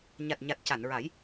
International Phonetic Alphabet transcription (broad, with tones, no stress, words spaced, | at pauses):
ɲa˨˩t̚ɲa˨˩t̚ ca˨˩˨nɹa˨˩˦j